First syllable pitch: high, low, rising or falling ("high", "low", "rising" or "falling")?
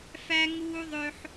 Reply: high